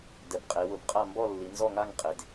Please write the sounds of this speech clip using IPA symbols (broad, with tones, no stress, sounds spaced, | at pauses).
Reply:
d ɛ˩˧ b qʼ e˩˧ w ʊ˩˧ b qʼ a˦˨ m b ɔ˦˨ lː i˩˧ n z ɔ˦˨ ŋ a˦˨ ŋ qʼ e˩˧ d